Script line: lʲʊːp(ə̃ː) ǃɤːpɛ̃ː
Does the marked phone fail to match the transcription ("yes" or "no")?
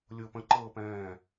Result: yes